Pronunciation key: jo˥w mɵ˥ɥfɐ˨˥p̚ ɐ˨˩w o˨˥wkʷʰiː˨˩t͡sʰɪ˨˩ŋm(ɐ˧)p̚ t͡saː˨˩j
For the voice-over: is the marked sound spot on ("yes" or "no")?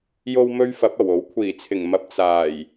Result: yes